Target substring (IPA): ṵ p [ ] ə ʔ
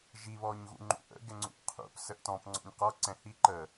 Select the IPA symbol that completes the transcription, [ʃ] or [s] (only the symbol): s